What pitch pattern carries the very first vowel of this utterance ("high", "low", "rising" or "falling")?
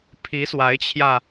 rising